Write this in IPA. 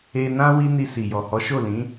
e˧ n ã˦ w i˦ n i˧ s i˨ j ɔ˨ h ɔ˨˦ ʃ o˦˨ l ĩ˨˦

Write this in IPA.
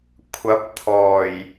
kʷʰ ɐ˨˥ p̚ t̪ʰ ɔː˨˩ j

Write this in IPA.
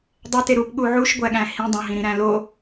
dˤ æ t e ɾ u p ɠ u ʕ u ʃ ɡʷ æ ɠ æ̃ h ĩ dˤ õ ɦ ĩ ɾ ĩ ɾ æ̃ l o

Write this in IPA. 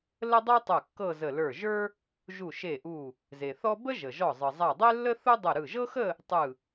l ə˥ dˤ ə˞˥ tˤ œ˧˩ kː ɤ˥˧ z ə˧˩ l ə˞˧˩ ʒ ə˞˥ | ʒ u˧˩ ʃ e˧˩ ʔ u˧˩ | z e˩ θ ɔ˥ b ə˥ ʒ ə˩ ʒ ɔ˧˩ zˤ ɯ˩ zˤ a˧˩ dˤ e˥ lː ə˥ θ u˥ dˤ ɯ˧˩ ɾ ɯ˧˩ ʒ ɤ˥ x ə˥˧ | tˤ ɯ˧˩

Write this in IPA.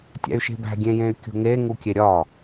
tʲ æ̰ y̯ ʃ e̤ b æ̤ ɡʲ ẽ j ẽ y̯ kʲ ṳ ŋ e ŋ u kʲ e ɾʲ ɒ

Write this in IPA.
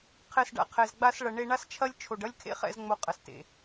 qʰ ɛ˨ s ɖ a̰˨ qʰ ɛ˨ z ɡ͡b a˧ s ɭ ɐ˨ ɳ e˧ ɳ a˦ s t͡ʃʰ ɐ˦ lʲ t͡ʃʰ o˨ ɖ ɐ˦ lʲ kʰ ḛ˦ χ ɛ̰˧ z ŋ͡m o˧ qʼ ɐ˨ s t ḛ˨

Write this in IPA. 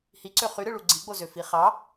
h i ǀ ø χ y ɾ ɯ ɭ u ɡ͡ǀ i ɡ͡b o z ø f i χ ɑ

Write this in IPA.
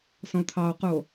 s ɔ̃ o̯ t̪ʰ ɑ o̯ q u o̯

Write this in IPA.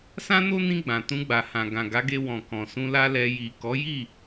s ã˦ n o˦ n ĩ˧ ɡ͡b ã˨ t ũ˧ ɡ͡b a˨ h ã˨ ɡ ã˨ ɡ a˨˦ ɡ e˧ w ɔ̃˨ k ɔ̃˨ s ũ˧ l a˦ l ɛ˧ j i˨ k ɔ˨˦ j i˦˨

